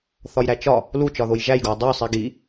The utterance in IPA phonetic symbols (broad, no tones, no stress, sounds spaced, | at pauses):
θ ɒ j ɾ æ t͡ʃ ɒ | l u t͡ʃ ɒ ð o j ʒ æ j ɡ o j dˤ o sˤ i ɡ i